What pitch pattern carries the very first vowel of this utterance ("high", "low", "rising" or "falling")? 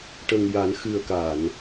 low